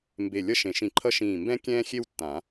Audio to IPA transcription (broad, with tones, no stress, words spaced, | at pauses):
mbe˧˩ lʲʌ˥ʃẽ˨˩˦ʃĩ˧˩ǃʰʌ˥ ʃĩː˧˩mbɛ̃˥ kʲɛ̃ː˥xʲe˥wtːã˨˩˦